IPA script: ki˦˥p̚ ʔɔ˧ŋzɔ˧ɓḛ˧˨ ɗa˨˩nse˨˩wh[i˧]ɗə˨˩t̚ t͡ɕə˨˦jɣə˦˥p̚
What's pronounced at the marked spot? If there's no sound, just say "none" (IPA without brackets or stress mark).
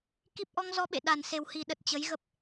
i˨˩